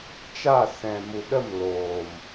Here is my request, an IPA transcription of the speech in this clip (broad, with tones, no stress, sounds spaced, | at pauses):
t͡ʃ a˦˨ s ɛ̃˨ m u˨ ɗ ə˦˨ m l oː˨ m